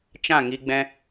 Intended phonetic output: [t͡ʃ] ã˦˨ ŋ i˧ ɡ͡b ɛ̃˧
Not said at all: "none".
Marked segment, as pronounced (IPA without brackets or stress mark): t͡ʃ